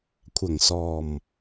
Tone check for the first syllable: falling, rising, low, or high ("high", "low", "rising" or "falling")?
low